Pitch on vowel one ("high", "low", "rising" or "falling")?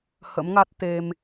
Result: rising